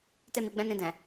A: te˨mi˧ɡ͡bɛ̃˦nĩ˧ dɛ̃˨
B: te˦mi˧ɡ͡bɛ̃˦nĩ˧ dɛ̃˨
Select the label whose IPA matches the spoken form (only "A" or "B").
B